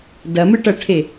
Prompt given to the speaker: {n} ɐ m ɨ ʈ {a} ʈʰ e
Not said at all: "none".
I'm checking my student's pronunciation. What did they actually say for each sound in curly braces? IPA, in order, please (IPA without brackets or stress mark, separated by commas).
d, ɐ